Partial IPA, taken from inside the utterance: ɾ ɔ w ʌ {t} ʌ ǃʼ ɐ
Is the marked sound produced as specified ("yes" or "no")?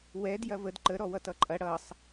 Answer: yes